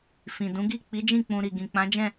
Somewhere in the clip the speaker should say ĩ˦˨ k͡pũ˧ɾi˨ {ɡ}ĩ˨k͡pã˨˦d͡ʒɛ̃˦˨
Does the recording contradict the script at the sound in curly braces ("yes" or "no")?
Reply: no